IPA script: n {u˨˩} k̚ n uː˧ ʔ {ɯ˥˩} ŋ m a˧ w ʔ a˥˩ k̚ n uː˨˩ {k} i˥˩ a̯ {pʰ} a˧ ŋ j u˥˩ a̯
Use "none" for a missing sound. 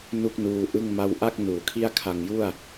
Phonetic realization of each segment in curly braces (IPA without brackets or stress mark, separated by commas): u˥˩, ɯ˥˩, kʰ, kʰ